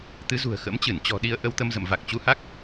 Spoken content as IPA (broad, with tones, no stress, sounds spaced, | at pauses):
t̪ ɨ˨˦ z ṳ˨˩ ə̯ x ə̰˧˥ m t͡ɕ ɨ˧˩ n t͡ɕ ɔ̤˨˩ ɗ i˧ ə̯ ʔ ə˧ w t̪ ə˧ m z ə̰˧˨ m v a˨˩ k̚ t͡ɕ u˨˦ h a˦˥ k̚